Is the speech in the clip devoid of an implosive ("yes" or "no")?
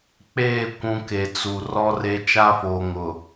yes